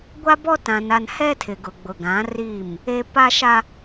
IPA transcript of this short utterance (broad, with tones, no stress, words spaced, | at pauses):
ɡʷa˦bɔ˦ tã˨na˨n hɛ˦tʰɪ˨ ɡʊ˨ɡ͡bʊ˨ɡã˨˦ riː˦˨m | e˨ pa˦ʃa˦